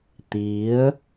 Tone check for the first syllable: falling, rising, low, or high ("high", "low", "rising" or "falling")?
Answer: rising